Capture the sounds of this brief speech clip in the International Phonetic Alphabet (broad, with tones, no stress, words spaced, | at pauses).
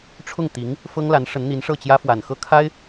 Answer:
ʈ͡ʂʰʊ˥˩ŋt̪i˧˥ŋ | fɤ˥ŋ la˧˥nʂə˧˥nn̪i˧˥n ʂɤ˥˩t͡ɕjä˥fwa˨˩nxɤ˥˩ kʰa˥ɪ̯